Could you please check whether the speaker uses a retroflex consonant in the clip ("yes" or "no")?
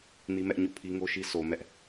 no